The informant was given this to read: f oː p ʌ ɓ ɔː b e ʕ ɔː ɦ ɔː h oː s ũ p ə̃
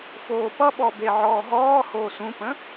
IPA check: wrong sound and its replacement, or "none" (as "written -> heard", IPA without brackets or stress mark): none